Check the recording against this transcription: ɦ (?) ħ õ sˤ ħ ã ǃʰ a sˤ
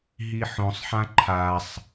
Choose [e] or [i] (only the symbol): i